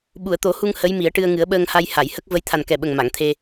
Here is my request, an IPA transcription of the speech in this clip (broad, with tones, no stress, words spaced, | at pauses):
ɓu˨˩˨ə̯t̪o˨˩˦hu˧ŋ hə˧˥jmi˨˩˦ə̯ʈɨ˧ə̯ ŋɨ˨˩˦ə̯ɓəː˧ŋha˧j ha˨˩˨jhə˦˥k̚ və˧˥jt̪ʰa˨˩nkɛ˨˩ɓə˨˩ŋ ma˨˩˨ŋt̪ʰe˧